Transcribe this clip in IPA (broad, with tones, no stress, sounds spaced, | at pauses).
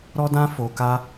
ɾ ɔ˦ d ã˦ f o˧ k a˦